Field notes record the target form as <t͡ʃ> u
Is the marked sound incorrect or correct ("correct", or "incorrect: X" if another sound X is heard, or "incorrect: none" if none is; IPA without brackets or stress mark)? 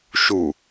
incorrect: ʃ